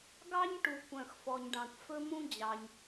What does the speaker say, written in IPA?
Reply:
ɡ ɑ˥ ɲ ʈ u˩ kʷ œ̃˩ x f ɔ˩ ɲ ɖ ɑ̃˩ kʷ f ɵ˥ m ũ˥ d͡ʑ ɑ˩ ɲ

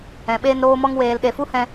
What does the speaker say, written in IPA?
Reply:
ɛ̃˨ ɓ eː˧ n ɾ oː˧ m ɔ˧ ŋ w eː˨ l ɗ e˨ f u˦ h ɛ̃˧

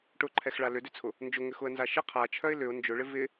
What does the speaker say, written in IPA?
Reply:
ʈ ʊ ǃʰ ɛ x ɭ a l ʏ d ʏ t͡sʰ ʊ | n d͡ʒ ʊ ŋ ʏ x ʊ ə̯ n z a ʃ ɪ qʰ a t͡ʃʰ œ ɪ̯ l ʏ ʊ̯ n d͡ʒ ʊ ɭ ɪ v ɪ

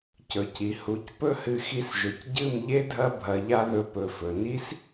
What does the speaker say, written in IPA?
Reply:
c ɵ˨ c i˨ h u˨˦ c p ɵ˦ h ɨ˧ x i˧ s ʒ ɵ˨ c ɟ ɨ˦˨ m ʎ e˦ dʱ ɐ˦ bʱ ɐ˧ ʎ a˦ ð ɵ˧ p ɵ˨ f ɵ˨ n i˦ s

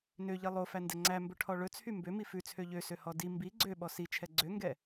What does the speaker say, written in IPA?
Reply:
n ø ʎ i lˠ o f æ n d ɛ ŋ͡ǀ æ m b ɵ ʈʰ ɔ ɭ ɵ t͡sʰ y m b ø m i f ʉ t͡sʰ ø ʎ ø s ø h ɔ d i m b i ɡ͡ǀ ø ɓ ɔ s i t͡ʃʰ ɛ ɡ͡ǀ ø ŋ ɡ ɛ

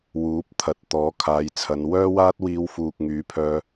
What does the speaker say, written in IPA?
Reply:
w uː˨˥ p̚ t̪ʰ ɐ˨ t̚ t̪ ɔː˨˥ kʰ aː˨˧ j t͡sʰ ɐ˨˧ n w œː˥ w aː˥ t̚ w iː˧ w f uː˨ k̚ ŋ yː˨˥ pʰ œː˧

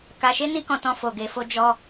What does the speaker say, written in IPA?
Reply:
k a˧ ʃ e˦ n i˦ k ɔ̃˧ t ɔ̃˧ f o˨ ɡ e˨ f o˧ d͡ʒ ɔ˧

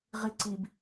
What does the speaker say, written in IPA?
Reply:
ʁ i ǀ i b

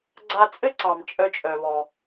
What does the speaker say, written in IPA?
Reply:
ɡ͡ǀ a˧ t͡sʼ ɘ˥ ǀ ɑ˩ m t͡ʃʼ œ˧ t͡ʃʼ œ˩ β ɔ˩

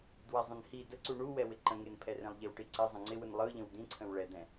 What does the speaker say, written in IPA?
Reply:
d w ɛ zˤ ə̃ n h i d ə ǀ u ɳ u w ɛ w ɪ ǃ ə̃ ŋ e n pʰ ɛ r ẽ lˠ ʎ e w ʈ i ǀ ɪ zˤ ə̃ ŋ͡ǀ ɪ w ɯ n lˠ ɯ ʎ ə̃ w d ĩ ǀʰ ə̃ w ɭ ɛ d̪ ɛ̃

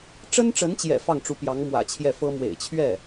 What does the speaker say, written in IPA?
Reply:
ʈ͡ʂ ə˥ n ʈ͡ʂ ə˧˥ n t͡ɕ j ɛ̰˨˩ f ɑ˥˩ ŋ ʈ͡ʂ u˧˥ p j ɑ˧˥ ŋ m w ä̰˨˩ t͡ɕʰ j ɛ˥˩ f ɤ˥ m w ḛ˨˩ ɪ̯ t͡ɕʰ ɥ ɛ˥˩

